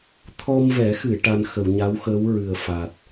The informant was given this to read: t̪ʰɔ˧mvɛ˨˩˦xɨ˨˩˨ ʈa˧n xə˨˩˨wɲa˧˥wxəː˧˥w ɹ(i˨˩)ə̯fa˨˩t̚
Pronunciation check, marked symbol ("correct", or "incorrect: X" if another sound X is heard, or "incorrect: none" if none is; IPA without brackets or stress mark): incorrect: ɨ˨˩